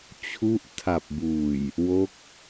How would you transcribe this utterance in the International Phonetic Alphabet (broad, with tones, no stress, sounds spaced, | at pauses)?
t͡ɕʰ u˦˥ ʔ tʰ a˨˩ p̚ b uː˨˩ j | w o˦˥ k̚